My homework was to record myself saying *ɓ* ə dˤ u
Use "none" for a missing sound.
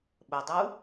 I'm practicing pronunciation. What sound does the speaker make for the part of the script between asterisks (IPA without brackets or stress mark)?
ɓ